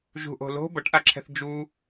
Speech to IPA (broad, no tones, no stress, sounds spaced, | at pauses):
ʒ ṳ ʔ o̤ l o̤ b ʌ ʈ ʔ a ǁʰ ɛ̤ θ d͡ʒ u